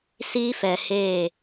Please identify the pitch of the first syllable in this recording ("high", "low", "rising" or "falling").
high